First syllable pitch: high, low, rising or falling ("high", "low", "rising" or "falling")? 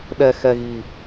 low